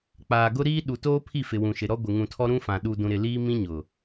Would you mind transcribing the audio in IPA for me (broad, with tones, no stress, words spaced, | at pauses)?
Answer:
k͡paː˨ɡʊ˦ɾiː˦ ɗu˨toː˦ pʰi˦˨fɪ˨wũ˨ʃɪ˨ ɾɔ˦ɡʷɪ˨ ŋũ˨tʰɔ˦ɾũ˦fã˨ ɗu˨ dũ˨ɾɪ˨ liː˦mĩ˦ɲʊ˨